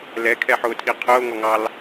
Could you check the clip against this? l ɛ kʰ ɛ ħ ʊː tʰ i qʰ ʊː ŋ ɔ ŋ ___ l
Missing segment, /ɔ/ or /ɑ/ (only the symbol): ɑ